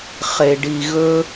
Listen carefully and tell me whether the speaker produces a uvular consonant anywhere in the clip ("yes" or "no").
yes